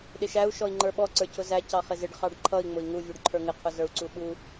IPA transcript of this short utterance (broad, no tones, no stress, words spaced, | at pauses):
ɗɪʃæu̯ ʃɔi̯ŋ͡ǃə˞ɓɔ ǀə˞cʰʊzæ cɑχɪzɪɖ χɑɖǃʰʌi̯ ŋ͡mʊi̯ŋu vʲuɖǃʰə˞ŋɪ qʰʊzə˞u̯ǀuɓu